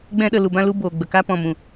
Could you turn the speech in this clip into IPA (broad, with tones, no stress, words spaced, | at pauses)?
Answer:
ɡ͡bɛ̃˧ ɗə˨lu˨bã˧lu˧ boː˨ɡ͡bə˨ka˦ pɔ̃˨mũ˨